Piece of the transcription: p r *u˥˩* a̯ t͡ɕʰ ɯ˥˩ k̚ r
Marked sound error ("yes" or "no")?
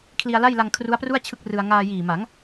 no